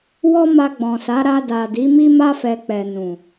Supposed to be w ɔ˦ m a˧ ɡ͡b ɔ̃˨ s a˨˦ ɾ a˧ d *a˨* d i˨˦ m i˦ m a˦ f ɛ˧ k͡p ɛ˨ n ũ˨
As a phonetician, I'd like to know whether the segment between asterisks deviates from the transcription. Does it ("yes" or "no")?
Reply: no